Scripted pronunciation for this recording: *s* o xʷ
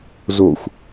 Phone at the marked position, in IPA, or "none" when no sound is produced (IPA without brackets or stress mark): z